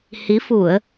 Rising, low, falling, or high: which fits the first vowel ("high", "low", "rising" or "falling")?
rising